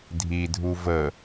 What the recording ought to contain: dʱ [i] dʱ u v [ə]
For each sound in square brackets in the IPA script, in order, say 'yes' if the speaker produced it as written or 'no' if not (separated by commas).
yes, yes